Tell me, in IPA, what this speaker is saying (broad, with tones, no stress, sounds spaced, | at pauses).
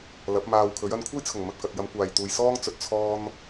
l ɐ˨˥ p̚ m aː˧ w kʰ ɵ˨˥ ɥ ɐ˧ n kʷʰ ɐ˥ j t͡sʰ ʊ˨˩ ŋ m ɐ˨ t̚ k ɐ˨ t̚ j ɐ˨˧ m kʷ aː˨ j t̪ uː˨ j s ɔː˥ ŋ t͡s ɵ˨˥ t̚ t͡sʰ ɔː˧ n